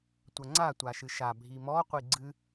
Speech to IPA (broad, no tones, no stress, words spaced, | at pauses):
tʷɐŋ͡ǀa tʷaʃɨʃa bʱimɔ qʷiɡ͡ǀɨ